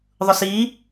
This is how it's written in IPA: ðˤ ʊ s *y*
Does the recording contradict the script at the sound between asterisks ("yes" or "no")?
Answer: yes